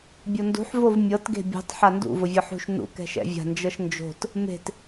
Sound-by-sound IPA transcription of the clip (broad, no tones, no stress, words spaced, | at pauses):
bʲondṳħ vovmʲɤt ɡe̤bʲṳtˤ ħandṵ vʊvʲɤħṳʃ nṵ kɛ̤ʃɛ̰vʲa̤ nd͡ʒɤʃnd͡ʒo̤t | me̤t